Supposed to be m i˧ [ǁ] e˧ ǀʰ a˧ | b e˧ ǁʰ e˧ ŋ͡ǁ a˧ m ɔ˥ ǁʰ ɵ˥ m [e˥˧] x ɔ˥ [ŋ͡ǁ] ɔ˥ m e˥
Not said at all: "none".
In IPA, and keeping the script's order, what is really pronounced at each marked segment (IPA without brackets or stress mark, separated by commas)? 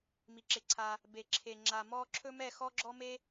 ǁ, ɛ˥˧, ɡ͡ǁ